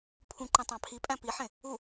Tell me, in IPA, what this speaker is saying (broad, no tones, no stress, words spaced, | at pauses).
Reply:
pʰũǃẽ tˤɑ̃pʰipʼæ̃ piħẽ | u